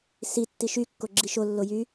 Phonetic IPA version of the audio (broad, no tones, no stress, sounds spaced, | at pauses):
s i tː i ʃ y kː o ɡ͡ǁ i ʃ o lː o j y